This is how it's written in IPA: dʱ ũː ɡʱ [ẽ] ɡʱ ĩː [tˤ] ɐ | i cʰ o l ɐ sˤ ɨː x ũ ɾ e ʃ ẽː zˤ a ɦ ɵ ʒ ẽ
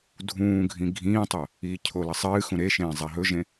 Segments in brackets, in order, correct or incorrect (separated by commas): incorrect, correct